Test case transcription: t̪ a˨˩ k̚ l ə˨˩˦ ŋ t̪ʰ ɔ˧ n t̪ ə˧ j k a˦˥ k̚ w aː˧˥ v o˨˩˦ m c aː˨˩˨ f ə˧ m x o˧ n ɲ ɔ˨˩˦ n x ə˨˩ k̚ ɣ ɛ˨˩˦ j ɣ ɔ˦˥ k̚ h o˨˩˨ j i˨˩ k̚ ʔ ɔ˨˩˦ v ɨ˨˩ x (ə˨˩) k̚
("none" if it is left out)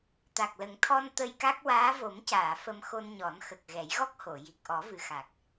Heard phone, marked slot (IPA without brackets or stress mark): a˨˩